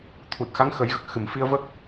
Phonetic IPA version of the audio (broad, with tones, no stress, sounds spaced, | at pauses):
t̪ʰ u˨˩ t̚ x a˧˥ ŋ x ə˨˩˦ j ɣ ə˨˩ k̚ x ɨ˨˩ m f i˧ ə̯ v ə˦˥ k̚